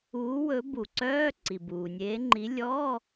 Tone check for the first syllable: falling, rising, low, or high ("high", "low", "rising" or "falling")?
rising